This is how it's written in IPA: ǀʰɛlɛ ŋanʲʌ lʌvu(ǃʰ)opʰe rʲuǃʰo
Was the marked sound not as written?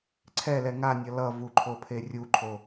no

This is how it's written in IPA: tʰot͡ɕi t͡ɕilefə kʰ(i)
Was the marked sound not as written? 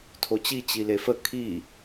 no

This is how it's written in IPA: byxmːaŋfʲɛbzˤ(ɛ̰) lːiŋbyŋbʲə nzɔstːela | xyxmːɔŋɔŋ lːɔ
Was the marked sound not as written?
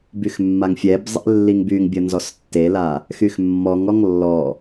no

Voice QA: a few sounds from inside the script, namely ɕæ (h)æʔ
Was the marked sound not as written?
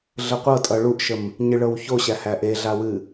no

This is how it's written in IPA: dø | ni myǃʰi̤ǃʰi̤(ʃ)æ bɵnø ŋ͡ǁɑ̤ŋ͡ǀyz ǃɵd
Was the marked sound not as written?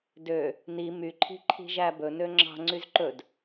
yes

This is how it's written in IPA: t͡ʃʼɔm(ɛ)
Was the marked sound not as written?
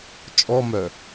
yes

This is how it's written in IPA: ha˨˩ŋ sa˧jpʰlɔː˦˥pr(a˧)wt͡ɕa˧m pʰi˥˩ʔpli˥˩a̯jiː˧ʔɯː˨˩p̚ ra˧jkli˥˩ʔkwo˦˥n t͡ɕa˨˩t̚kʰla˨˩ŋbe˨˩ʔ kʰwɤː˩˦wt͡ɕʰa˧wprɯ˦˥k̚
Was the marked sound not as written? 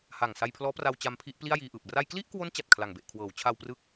no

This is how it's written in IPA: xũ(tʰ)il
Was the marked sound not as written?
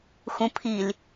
yes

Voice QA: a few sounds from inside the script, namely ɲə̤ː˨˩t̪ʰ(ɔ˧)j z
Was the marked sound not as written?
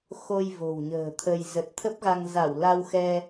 yes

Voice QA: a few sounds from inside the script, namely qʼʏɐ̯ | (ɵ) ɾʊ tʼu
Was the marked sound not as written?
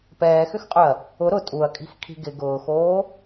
yes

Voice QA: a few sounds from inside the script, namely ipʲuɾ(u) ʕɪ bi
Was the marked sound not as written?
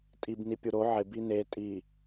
yes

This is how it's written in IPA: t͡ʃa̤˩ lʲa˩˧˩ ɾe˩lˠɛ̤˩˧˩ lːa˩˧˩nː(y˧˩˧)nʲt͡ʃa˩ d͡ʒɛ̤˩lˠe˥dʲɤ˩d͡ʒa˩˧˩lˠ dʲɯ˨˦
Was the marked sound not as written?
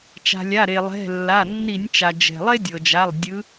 yes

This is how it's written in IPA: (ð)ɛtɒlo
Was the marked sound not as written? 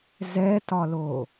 yes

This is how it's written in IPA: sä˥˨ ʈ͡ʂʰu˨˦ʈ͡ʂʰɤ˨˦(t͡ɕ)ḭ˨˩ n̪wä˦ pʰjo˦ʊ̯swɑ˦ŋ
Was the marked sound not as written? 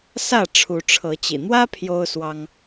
no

